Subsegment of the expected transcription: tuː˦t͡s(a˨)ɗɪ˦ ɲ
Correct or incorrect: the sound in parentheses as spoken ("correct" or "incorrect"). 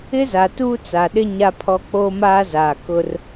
correct